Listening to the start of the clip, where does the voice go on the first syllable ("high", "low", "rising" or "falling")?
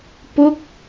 falling